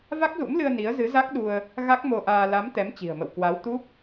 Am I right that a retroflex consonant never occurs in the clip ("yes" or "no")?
yes